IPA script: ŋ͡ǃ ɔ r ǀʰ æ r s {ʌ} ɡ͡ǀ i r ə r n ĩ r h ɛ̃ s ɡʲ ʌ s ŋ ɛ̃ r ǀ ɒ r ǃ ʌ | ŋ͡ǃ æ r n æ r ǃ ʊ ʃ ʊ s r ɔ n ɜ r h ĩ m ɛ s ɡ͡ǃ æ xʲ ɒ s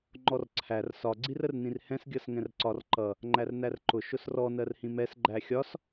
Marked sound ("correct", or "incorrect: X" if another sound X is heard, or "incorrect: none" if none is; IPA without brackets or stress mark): incorrect: ɒ